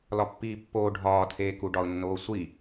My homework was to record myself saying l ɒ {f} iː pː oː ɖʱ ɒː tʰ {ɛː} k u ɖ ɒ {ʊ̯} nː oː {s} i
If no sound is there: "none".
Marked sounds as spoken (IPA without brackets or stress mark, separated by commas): pː, eː, ʊ̯, sʷ